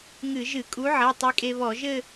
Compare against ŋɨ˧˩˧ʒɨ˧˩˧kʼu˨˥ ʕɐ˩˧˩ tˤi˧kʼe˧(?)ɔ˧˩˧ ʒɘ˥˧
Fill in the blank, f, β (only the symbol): β